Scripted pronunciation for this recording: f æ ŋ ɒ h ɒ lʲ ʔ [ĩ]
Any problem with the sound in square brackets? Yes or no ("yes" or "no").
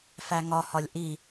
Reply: yes